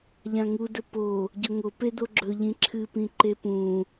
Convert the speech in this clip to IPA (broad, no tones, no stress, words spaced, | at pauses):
ʎãŋudɵ po | ɟɵŋo ped̪oɡ͡ǁɵ ʎĩǁʰɨpĩ ǃepũ